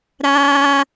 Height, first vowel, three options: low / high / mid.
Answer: low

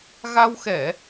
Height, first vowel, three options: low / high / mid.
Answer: low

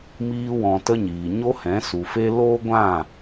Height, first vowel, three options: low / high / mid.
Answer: high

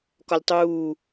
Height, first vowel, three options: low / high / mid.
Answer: low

